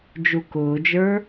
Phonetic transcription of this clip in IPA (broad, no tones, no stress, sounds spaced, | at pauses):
d͡ʒ u k ʊː d͡ʒ ə˞